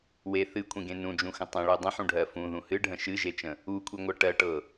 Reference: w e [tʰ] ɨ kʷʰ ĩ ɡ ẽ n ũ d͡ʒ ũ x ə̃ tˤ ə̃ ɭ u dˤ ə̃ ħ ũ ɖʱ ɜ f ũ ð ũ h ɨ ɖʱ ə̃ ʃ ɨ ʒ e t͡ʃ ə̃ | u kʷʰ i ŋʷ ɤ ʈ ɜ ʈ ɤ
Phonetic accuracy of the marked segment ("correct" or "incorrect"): incorrect